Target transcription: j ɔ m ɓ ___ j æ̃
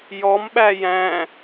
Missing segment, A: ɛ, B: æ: B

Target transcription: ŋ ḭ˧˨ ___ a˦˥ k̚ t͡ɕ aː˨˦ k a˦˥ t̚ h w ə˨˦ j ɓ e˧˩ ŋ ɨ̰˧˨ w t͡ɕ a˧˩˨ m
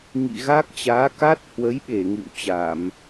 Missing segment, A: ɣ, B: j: A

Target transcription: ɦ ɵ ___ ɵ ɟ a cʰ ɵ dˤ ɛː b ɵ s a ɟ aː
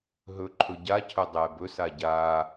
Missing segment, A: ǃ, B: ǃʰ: B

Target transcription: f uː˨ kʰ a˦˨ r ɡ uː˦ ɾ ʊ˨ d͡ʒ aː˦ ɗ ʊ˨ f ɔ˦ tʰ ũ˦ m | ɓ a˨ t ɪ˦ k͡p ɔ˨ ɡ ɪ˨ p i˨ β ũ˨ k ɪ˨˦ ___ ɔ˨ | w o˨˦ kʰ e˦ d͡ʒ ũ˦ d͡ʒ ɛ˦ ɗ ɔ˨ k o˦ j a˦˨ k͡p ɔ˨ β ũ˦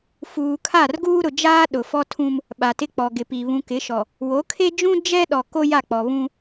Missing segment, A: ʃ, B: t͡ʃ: A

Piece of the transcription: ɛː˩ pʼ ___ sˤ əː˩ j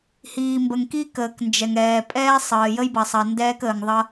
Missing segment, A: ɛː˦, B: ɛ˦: A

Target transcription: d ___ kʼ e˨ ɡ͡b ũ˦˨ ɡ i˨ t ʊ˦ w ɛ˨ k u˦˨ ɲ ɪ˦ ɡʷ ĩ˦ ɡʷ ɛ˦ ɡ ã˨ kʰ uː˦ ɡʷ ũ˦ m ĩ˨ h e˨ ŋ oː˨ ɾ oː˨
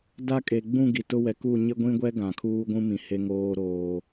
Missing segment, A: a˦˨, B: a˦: A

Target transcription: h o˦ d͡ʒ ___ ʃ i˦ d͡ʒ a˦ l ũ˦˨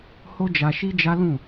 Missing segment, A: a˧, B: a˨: A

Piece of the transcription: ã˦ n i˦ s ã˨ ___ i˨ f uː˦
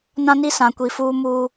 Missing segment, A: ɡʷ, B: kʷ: B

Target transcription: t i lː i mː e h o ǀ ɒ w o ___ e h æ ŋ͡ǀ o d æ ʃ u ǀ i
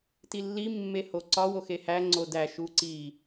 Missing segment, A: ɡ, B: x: B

